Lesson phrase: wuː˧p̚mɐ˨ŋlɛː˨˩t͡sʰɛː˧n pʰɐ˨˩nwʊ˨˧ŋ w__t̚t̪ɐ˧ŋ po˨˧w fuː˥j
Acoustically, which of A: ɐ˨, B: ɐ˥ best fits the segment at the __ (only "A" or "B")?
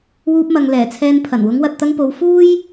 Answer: A